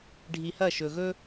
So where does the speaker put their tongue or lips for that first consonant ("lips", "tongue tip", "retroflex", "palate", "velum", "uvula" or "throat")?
retroflex